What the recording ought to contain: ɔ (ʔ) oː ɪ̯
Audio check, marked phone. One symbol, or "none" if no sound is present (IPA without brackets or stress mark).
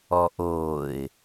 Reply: ʔ